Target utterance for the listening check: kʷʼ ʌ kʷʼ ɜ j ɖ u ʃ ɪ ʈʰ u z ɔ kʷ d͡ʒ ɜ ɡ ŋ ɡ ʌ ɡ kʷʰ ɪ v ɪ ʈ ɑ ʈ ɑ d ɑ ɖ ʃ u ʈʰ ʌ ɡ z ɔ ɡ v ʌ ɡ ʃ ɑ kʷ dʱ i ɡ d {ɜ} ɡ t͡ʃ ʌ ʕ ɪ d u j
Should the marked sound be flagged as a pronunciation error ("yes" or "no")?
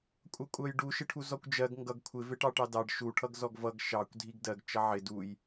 no